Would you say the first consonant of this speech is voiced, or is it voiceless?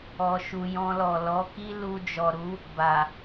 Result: voiceless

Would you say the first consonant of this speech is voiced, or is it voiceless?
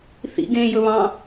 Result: voiceless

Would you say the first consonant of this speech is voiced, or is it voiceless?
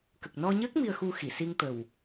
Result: voiceless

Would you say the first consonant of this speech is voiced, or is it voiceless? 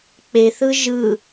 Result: voiceless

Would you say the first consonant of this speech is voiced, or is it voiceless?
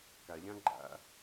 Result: voiceless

